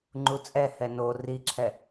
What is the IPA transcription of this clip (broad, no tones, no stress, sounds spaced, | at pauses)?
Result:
ŋ͡ǃ u t͡sʼ ɛ h ɛ n o r i ǁʰ ɛ